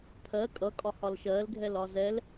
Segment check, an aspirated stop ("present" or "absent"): present